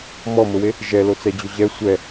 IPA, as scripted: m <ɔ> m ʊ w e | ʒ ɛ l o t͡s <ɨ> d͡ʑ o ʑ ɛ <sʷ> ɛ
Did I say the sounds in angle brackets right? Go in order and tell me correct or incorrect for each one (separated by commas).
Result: correct, incorrect, correct